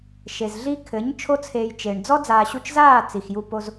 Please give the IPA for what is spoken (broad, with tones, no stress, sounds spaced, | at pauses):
ʃ e˨ z ɮ i˧ kʰ ɘ˨˦ ɲ t͡ʃʰ o˧ t͡sʰ eː˨ j t͡ʃ e˨ ɳ d͡z ɔ˦ d͡z aː˨ ɕ u˧ t͡ʃ z aː˦˨ t͡s i˨ x j u˧ p o˧ z